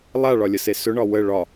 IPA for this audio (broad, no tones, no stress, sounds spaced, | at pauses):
lˠ a ɭ ɒ lʲ ə s e s ɵ ɳ ɒ w ə ɭ ɒ